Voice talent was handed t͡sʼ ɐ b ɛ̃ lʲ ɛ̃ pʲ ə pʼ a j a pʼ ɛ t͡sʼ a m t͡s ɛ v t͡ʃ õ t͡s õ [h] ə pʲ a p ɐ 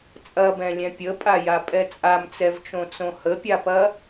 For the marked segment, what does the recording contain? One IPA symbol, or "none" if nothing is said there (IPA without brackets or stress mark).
h